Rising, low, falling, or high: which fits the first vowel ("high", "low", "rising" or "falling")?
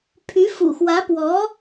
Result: rising